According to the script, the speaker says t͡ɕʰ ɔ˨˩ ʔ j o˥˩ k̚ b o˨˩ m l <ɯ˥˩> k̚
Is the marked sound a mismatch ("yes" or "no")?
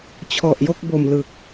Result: yes